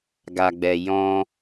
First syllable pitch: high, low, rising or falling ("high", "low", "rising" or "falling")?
low